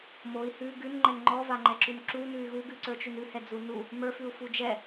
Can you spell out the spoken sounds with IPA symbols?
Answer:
moi̯ hʉ ɡʉnŋ͡ǃɛn ŋ͡ǃɔvaŋ͡ǃɛǁʉn ǁunʉy̯ ɣuɡʉǀə˞t͡ʃʉn ʉhɛd͡zu nu | mə˞fʉu̯fu d͡ʒɛ

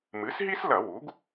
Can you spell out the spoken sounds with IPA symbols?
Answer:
mɨ˩˥sɦi˥slɐ˧˩˧ wu˩˥ɡ

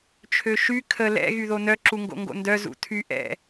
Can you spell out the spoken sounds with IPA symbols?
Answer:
t͡ʃʰøʃy kʰə lɛ̰ ɣyðonœ ǁuŋɡo̰ŋɡo̰ndœ zṵtʰy ʔɛ̰

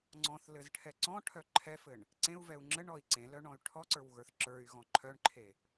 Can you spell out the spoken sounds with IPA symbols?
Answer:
ŋ͡ǀɔ̃θlɘzʈʰɛ ǀɔ̃ʈʰœ ǃʰɛfɘɳ | ǀẽu̯vɛu̯ ŋ͡ǁɘɳɔi̯ ǀẽlœɳɔ̃y̯ ʈʰɔǀə˞wɣə˞θ ǁə˞y̯ɣɔ̃ ǃʰœɳǃʰe

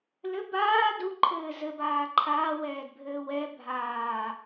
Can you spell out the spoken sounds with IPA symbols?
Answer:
lɘ baː duǃʰɘː zɘbaː ǃʰaːwɛːdbʱɘː wɛ bʱaː

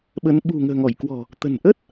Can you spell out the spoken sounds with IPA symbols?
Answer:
ɓə˨˦n ɓṳ˨˩ŋə̤ː˨˩ŋɔ˧˩jkwɔ̤˨˩ | t̪ə̤˨˩nʔə˦˥t̚

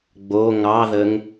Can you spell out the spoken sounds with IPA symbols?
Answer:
ɡ͡bo ŋɑðəŋ

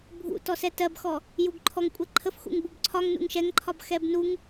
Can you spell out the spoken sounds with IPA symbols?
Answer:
bʱṵ tɔsɛtɜbxɔ | juɡǃʰɔŋ kʷʼɛǃʰəf xṵŋbubǀʰɒŋ nṵŋʃɛŋǃʰɒb xɛbnuŋ

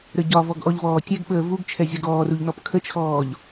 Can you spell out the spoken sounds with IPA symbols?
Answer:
ɾəɟɒvɔɡ ʔɔʎvɔːtʲɛɡɓəː vuɡt͡ʃʰɛ zʲɔɡɔːruʎ nɔpkʰət͡ʃʰɔːʎ

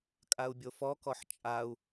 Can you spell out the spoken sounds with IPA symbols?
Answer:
kʼau̯bʲofɔkɔħ t͡ʃʼau̯

